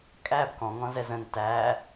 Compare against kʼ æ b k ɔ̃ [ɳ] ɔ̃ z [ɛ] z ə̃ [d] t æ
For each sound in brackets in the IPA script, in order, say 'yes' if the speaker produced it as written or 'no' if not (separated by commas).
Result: no, yes, no